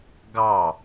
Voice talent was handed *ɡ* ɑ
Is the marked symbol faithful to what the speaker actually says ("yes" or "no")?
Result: yes